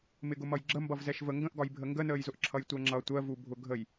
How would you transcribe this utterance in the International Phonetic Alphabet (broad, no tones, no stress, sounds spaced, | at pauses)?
m ɪ ɡ ʊ m ʌ j ɡ͡ǁ ə m b ʌ v z ɛ ʃ v ə ŋ ɡ ə̃ ʔ ɡ ɒ j bʱ ə ŋ ɡ ə n əː j z ʊ ʔ ǁʰ ʌ j tʷ ɜ ŋ͡ǁ ʌ tʷ ɜ v u bʱ ʊ ɡʱ ə j